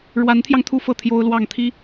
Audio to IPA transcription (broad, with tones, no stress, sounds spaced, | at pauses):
ɻ w a˧˥ n t̪ʰ j ɑ˧ ŋ t̪ʰ u˥˧ f ɤ˥˩ t̪ʰ j o˥ ʊ̯ l w ɑ˥˩ ŋ t̪ʰ i˥